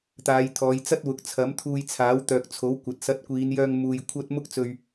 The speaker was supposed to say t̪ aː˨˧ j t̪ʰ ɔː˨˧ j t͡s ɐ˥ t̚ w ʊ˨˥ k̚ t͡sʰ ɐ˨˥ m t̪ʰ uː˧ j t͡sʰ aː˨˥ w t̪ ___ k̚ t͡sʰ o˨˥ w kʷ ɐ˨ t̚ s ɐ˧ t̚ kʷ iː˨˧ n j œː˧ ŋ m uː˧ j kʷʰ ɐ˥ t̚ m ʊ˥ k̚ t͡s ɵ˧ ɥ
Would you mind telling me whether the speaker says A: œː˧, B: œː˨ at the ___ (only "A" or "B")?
B